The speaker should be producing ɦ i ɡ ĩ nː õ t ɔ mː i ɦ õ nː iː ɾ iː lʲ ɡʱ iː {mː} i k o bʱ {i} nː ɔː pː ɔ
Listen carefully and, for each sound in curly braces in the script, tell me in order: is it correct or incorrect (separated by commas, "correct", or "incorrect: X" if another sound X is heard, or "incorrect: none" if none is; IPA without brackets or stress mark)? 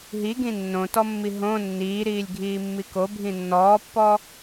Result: correct, incorrect: ĩ